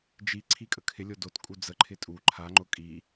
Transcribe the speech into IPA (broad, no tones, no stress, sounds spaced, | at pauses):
d͡ʒ i ǀʰ i kʼ ə kʰ ɪ lʲ o d o t kʼ u d͡z ə ǃʰ ɪ tʼ u ǃʰ a ŋ͡ǃ ʊ kʼ i